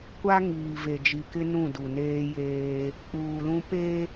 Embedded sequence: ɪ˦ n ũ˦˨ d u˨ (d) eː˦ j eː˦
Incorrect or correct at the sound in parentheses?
incorrect: n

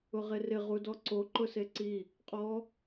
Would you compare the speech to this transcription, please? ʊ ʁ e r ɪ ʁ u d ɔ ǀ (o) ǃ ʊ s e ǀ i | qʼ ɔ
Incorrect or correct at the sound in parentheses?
correct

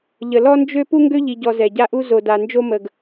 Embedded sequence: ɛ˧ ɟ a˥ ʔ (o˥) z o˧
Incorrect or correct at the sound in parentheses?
incorrect: u˥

